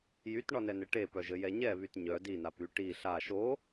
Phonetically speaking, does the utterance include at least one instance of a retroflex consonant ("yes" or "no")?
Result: yes